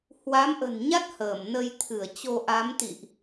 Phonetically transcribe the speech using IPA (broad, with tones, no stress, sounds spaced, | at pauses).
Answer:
h w a˨˦ m ʔ ə̤˨˩ n ɲ a˦˥ t̚ h əː˧˩ m n ə˧ j t̪ʰ ɨ˧˩ ə̯ t͡ɕ o˧ ʔ a˨˦ m t̪ ḭ˧˨ ʔ